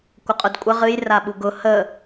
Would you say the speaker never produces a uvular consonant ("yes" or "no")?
no